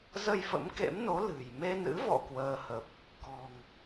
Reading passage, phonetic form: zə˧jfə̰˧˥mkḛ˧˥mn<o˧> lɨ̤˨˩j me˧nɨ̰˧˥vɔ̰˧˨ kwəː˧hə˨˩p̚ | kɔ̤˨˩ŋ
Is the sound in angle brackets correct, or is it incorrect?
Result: incorrect